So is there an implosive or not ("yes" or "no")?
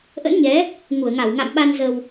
yes